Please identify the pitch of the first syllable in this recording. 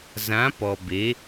rising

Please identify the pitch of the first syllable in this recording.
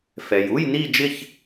low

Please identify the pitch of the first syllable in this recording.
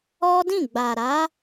high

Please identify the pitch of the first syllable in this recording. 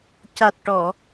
low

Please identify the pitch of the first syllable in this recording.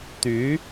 rising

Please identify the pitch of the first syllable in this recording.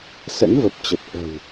rising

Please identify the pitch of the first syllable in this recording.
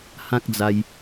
high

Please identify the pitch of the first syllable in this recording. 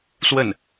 falling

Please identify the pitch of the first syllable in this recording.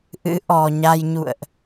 rising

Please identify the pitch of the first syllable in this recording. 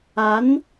rising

